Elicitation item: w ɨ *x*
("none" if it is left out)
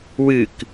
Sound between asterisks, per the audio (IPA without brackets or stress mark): k